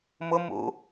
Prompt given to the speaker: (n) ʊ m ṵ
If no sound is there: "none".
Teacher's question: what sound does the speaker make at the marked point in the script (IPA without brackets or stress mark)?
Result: m